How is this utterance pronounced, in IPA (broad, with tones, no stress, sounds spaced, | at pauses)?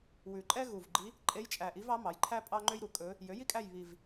w ʉ˨˩ ǃʼ ɛ˥ ɣ u˨˩ v ɡ͡ǃ i˧˥ | ǃʼ e˧˥ j t͡ʃʼ æ˨˩ ʔ i˧˥ v ɑ˧˥ m ɑ˩˥ j ǃʰ æ˥ pʼ ɑ˥ ŋ͡ǃ ø˥ j ɾ u˩˥ kʼ ɵ˧˥ | j ø˩˥ j i˥ kʼ æ˦˨ j β i˨˩ v